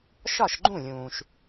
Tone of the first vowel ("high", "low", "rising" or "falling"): falling